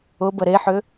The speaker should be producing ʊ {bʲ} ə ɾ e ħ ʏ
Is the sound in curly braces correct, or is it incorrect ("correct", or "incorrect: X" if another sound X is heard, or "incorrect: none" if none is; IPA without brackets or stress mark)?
incorrect: b